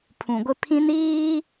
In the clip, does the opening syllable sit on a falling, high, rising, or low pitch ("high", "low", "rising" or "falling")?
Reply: low